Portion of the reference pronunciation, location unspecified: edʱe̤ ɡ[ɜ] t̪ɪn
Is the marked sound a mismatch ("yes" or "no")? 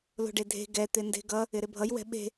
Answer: yes